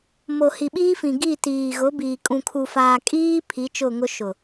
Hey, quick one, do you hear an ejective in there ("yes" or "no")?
yes